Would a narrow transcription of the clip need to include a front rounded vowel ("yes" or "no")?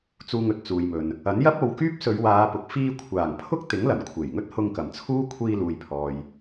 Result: yes